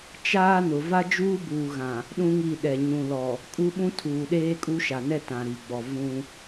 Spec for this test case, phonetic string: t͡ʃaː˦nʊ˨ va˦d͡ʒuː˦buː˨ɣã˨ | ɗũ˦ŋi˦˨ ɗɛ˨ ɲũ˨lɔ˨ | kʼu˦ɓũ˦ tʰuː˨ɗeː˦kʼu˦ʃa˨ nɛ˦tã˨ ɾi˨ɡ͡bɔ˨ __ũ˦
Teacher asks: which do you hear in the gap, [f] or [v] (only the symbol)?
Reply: v